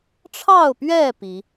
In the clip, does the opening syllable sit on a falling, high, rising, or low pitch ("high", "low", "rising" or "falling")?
falling